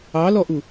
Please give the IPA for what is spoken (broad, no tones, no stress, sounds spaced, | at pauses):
ɑ l ɔ ʔ u